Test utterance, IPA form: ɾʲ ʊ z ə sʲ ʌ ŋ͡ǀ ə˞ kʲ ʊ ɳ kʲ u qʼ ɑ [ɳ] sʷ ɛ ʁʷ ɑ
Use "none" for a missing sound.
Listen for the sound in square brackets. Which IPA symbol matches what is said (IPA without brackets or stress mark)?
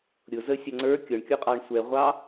ɳ